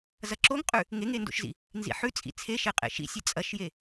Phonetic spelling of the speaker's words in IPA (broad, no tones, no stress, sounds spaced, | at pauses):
z ɐ ǁ o ŋ qʼ ʉ | ŋ e ŋ e n d o̰ ʃ z ḭ | n z ḭ ħ ʉ t͡sʼ ḭ t͡sʰ e ʃ e qʼ ḛ ʃ ḭ sʲ e t͡sʼ ɐ ʃ j e